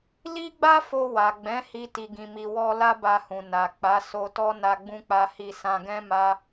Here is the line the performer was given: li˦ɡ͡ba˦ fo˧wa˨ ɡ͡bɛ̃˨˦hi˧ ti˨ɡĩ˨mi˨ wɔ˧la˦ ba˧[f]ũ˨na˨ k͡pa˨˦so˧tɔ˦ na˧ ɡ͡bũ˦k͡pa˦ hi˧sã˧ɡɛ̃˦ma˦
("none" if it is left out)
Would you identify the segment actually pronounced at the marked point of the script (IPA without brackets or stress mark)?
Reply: h